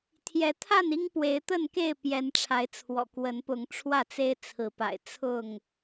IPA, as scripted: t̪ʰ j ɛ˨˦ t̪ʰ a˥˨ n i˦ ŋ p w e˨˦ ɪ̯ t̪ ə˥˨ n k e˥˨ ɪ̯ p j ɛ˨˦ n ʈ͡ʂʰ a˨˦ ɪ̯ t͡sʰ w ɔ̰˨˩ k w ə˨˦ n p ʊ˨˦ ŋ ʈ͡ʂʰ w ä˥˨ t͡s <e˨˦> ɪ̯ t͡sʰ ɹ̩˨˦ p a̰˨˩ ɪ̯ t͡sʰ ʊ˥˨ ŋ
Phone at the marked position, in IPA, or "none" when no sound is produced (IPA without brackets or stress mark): e˦